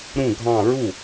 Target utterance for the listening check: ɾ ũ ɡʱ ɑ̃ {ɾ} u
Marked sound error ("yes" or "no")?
yes